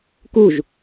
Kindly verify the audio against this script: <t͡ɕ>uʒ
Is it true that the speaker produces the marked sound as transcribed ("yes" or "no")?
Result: no